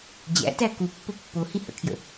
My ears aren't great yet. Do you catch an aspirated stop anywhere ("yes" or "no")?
yes